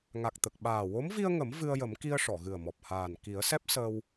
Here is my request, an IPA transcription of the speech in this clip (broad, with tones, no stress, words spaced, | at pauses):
ŋa˨˩k̚t̪ə˨˩k̚ ɓaː˨˩wo˧˥mvi˧ə̯ŋə˨˩˦m vɨ˧ə̯jə˨˩˦m ki˧ə̯ʂɔ˨˩˨ɣɨ˨˩ə̯mɔ˨˩p̚ haː˨˩n ki˨˩˦ə̯sɛ˦˥p̚ səː˧w